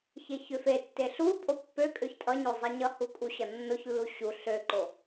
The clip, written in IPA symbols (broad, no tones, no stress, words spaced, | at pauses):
çeçøfetːe ɬu pʼopːøkʼøç tʼʌɲo zˤeɲʌhu kʼuɕʌnːoçlːu ɕu ɬøǃo